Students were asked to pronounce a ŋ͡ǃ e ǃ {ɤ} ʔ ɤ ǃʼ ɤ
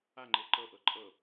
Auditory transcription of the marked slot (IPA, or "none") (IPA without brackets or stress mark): ɤ